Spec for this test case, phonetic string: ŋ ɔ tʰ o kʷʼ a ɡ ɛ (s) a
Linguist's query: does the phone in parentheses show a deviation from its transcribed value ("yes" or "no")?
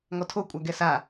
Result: no